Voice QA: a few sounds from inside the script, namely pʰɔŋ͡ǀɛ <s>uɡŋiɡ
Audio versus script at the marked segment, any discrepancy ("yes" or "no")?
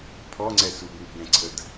no